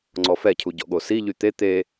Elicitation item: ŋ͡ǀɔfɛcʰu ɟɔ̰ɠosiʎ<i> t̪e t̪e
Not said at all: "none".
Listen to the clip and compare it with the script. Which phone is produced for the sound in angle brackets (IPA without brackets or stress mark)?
y